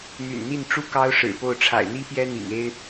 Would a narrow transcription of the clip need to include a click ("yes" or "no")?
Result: no